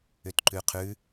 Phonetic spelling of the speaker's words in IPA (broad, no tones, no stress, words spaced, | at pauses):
ʏtǃʉqʰʉ